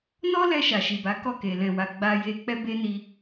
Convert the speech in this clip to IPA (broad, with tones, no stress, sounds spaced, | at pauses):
n ɔ˦ l ɛ˧ ʃ a˨ ʃ i˨ b a˨˦ k ɔ˦˨ k e˨ l ɛ̃˨ w a˨ ɡ͡b a˧ j e˧ k͡p ɛ˦ b e˦ n i˧